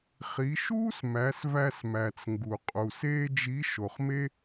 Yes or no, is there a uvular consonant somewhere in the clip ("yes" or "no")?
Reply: yes